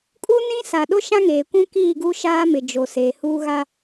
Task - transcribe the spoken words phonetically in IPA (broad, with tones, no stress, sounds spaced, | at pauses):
kʼ u˦ n ĩ˦ s a˨ ɗ ʊ˦ ʃ ã˦ ŋ eː˨ kʷ ũ˦ k iː˦˨ ɡ u˦ ʃ aː˦ m ɪ˨ d͡ʒ o˨ s eː˨ h uː˦ ɣ a˦